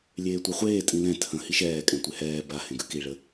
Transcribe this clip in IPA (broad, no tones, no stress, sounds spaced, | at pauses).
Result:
lʲ eː tʷ ɛ χʷ eː tʼ ĩ l ɛ̃ tʰ ə̃ h i ʃ ɛː kʼ ɛ̃ tʷ e h ɛː b a h ẽ ɡ ʉ k i ɭ ə